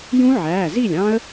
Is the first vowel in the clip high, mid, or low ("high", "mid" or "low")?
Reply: high